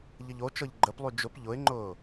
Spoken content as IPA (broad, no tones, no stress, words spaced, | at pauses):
ʎəʎot͡ʃɤʎ ɡ͡ǃəplˠy d͡ʒʊp ʎʊɪ̯ŋ͡ǃʊː